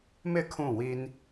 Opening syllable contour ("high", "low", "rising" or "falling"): falling